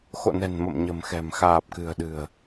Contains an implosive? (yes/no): yes